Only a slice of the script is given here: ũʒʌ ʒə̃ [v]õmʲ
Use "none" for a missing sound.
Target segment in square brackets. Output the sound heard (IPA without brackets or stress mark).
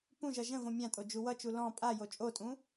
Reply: v